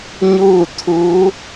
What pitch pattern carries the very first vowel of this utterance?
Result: falling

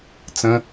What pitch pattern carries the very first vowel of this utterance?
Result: high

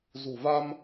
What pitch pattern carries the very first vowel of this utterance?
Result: low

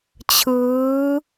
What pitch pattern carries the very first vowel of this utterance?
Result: rising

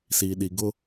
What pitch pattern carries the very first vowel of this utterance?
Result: low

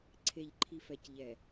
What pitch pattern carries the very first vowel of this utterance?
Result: low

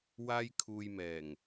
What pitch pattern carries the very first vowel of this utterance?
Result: high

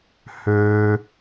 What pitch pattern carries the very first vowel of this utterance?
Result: high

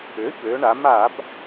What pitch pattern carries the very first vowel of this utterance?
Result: rising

